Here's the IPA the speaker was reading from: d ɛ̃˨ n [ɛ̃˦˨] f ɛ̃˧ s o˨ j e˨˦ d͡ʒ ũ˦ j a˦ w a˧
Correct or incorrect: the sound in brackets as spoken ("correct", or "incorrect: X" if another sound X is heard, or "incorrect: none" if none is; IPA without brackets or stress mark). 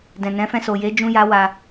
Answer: incorrect: ɛ̃˨˦